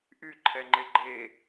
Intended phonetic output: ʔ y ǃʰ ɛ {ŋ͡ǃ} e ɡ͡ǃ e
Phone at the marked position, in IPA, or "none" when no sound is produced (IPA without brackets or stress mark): ŋ͡ǃ